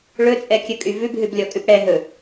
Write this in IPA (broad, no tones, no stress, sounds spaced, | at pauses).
ɭ ɵ t͡sʼ ɛ kʲ ɵ kʼ y v ʉ b ɦ ʉ b lʲ ɔ kʼ ʉ p ɽ ɛ ɦ ɵ